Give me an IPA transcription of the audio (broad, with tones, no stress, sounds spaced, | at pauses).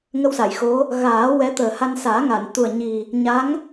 ŋ ə˧ w s a˨˩˨ j x o˧˥ | ɣ aː˨˩˦ w ɛ˧˥ t̪ əː˨˩ h a˧ n s aː˨˩˦ ŋ a˨˩˨ n t̪ u˨˩ ə̯ ɲ i˨˩ | ɲ a˧˥ ŋ